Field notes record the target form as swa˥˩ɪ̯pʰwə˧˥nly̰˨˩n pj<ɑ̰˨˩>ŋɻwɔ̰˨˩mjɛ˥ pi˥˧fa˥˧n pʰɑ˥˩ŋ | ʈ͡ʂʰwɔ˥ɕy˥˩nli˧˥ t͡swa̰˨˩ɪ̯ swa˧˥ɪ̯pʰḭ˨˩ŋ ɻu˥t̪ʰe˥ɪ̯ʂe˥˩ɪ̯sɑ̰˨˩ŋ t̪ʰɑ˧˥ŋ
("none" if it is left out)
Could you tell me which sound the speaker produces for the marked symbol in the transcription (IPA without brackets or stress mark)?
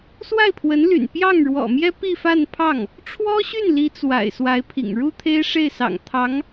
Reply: ɑ˥˩